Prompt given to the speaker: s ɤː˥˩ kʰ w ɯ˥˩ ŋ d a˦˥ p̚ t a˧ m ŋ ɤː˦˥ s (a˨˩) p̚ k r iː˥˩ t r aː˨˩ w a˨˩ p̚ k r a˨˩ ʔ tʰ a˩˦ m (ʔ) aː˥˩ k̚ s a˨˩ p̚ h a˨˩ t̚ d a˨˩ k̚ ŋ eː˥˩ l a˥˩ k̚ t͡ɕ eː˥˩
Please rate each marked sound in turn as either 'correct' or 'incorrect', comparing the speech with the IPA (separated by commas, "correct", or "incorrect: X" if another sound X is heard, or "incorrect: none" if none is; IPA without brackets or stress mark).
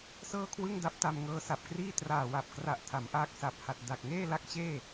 correct, correct